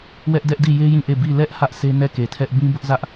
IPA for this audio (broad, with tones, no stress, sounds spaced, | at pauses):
w ɛ˦ ʔ d ɛ˦ ʔ d i˦˨ j e˦ j ĩ˦˨ ʔ e˦˨ b i˦˨ l ɛ˦ ʔ h ä˦ ʔ sʰ e˦ n ɛ˦˨ k e˨ tʰ ɛ˦ ʔ b ĩ˦ b ʊ˦ ʔ z ä˦ ʔ